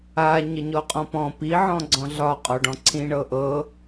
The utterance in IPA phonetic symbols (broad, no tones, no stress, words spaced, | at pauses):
a ɲəɲɔqʼɔ̃pɔ̃ pi ʕɔ̃ɡ͡ǀɔ̃ɮɒ qʼɒɖɔ̃ǀʰĩ ɳɤʔɤ